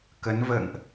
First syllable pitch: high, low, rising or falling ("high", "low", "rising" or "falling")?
rising